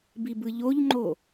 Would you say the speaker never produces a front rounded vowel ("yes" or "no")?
yes